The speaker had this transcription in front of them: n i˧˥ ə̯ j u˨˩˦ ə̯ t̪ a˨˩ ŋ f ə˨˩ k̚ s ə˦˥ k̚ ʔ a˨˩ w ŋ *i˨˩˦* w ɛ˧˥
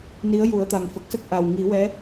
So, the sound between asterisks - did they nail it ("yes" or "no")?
yes